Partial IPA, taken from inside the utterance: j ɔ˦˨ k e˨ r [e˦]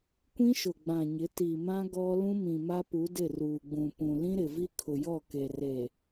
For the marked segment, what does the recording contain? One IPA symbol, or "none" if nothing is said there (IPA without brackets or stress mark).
e˨